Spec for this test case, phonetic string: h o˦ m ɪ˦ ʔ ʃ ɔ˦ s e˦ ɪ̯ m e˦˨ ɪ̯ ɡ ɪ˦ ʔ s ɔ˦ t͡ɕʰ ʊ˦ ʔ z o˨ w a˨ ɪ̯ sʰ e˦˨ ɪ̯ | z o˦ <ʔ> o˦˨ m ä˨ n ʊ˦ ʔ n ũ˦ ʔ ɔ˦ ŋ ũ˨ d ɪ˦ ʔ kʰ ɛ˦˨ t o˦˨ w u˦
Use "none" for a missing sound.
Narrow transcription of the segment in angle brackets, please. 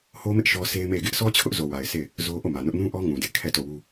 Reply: ʔ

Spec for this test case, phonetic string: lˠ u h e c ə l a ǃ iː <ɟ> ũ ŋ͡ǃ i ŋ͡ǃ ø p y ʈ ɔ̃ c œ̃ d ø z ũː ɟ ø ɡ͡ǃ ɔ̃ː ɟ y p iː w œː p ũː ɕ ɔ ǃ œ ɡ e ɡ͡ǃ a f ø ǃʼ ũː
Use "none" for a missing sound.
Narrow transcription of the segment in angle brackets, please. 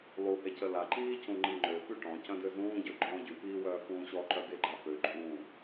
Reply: c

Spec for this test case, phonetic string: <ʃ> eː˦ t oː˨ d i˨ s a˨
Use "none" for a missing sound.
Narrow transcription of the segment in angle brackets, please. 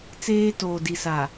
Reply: t͡s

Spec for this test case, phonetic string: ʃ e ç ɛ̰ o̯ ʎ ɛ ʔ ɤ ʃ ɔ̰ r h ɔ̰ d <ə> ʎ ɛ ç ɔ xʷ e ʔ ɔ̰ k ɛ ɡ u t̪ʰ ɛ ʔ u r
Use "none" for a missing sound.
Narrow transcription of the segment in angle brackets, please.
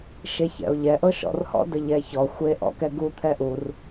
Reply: ə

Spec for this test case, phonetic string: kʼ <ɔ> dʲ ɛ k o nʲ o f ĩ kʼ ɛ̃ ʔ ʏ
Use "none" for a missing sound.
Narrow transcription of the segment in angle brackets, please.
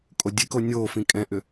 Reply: o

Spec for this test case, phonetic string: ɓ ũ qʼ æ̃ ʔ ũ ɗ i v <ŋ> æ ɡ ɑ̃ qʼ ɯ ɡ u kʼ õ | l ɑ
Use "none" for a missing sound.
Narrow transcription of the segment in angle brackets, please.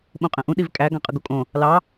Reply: kʼ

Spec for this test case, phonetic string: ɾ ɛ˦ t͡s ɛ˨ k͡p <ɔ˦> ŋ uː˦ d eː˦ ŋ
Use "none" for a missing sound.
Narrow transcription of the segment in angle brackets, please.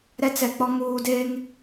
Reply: ɔ˦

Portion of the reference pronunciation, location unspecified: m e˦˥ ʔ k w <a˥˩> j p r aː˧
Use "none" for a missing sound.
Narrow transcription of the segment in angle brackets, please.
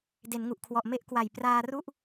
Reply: a˨˩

